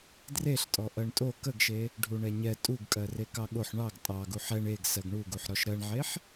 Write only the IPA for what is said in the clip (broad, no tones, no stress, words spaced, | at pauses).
dreɬtʼɔ ʔɜɳtʼo kəɡʃe | ɖʱuɳɛɲɛ tʼuɡkʼɜ rekɑɠoħ ɳɑɡ tʼɑ ɡuħɛɳ eɡ sɜɡɳuɡuħ ɾɔʃɾɜɳʕeħ